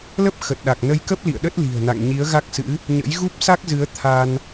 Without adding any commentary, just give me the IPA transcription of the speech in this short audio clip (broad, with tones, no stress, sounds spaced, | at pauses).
l ə˦˥ p̚ x ə˨˩ t̚ ɗ a˨˩ k̚ n ə˧ j k ə˦˥ p̚ l ḭ˧˨ ə̯ ɗ ə˦˥ t̚ l i̤˨˩ ə̯ n a̰˧˨ ŋ ɲ i˨˦ ə̯ ɣ a˦˥ k̚ s ɨ̰˧˥ | ɲ ə̰˧˥ j ɣ u˦˥ p̚ s a˦˥ k̚ z ɨ˨˦ ə̯ t̪ʰ a˧ n